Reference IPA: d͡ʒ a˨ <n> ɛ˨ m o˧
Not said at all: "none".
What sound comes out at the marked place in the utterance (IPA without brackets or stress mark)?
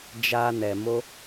n